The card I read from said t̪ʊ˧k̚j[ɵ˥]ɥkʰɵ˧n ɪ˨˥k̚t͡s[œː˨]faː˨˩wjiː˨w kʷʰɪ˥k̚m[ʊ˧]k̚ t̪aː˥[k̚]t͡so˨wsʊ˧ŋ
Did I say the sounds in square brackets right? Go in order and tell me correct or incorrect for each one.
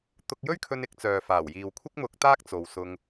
correct, correct, correct, correct

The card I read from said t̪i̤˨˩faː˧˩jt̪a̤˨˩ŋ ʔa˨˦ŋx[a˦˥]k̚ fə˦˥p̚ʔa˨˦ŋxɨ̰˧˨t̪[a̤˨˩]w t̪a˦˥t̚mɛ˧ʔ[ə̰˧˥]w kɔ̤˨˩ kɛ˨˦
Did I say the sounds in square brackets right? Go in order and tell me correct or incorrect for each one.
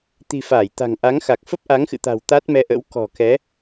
incorrect: a˨˩, correct, correct

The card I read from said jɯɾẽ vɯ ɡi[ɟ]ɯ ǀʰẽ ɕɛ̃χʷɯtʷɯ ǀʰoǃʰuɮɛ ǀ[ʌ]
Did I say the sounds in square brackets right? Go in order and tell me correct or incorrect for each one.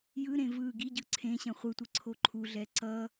correct, correct

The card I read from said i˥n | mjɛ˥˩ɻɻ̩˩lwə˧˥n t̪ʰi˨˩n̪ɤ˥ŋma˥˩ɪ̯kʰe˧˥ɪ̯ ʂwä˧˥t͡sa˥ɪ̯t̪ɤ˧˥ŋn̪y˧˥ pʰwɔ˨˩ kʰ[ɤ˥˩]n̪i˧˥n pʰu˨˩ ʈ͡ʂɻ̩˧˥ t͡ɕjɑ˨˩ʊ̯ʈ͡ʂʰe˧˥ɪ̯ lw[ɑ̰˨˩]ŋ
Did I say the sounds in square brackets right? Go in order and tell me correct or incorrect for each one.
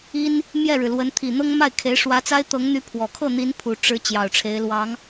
correct, incorrect: ɑ˧˥

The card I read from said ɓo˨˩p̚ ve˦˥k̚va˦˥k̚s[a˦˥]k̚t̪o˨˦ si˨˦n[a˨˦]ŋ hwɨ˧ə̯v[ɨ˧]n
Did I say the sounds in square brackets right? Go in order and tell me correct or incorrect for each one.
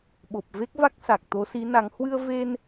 incorrect: a˨˩, correct, incorrect: e˧

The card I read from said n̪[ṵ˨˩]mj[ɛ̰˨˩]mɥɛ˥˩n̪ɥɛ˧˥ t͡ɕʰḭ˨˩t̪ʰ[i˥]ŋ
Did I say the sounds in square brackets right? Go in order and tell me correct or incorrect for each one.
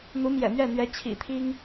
incorrect: u˧˥, correct, correct

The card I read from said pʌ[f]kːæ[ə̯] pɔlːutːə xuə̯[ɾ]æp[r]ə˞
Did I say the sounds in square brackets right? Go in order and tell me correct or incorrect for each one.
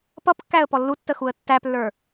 incorrect: p, correct, incorrect: tː, incorrect: lː

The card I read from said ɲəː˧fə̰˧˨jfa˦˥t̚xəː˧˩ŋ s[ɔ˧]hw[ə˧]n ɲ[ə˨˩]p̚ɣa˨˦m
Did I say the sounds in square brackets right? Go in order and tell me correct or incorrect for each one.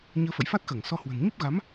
correct, incorrect: ə̤˨˩, incorrect: ə˦˥

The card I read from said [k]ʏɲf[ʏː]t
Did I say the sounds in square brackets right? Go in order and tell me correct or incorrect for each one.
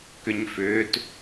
correct, correct

